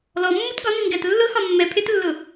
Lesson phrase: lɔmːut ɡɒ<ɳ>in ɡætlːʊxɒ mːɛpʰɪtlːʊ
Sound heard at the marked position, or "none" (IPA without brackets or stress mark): n